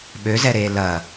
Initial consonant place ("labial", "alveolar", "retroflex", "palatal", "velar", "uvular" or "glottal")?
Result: labial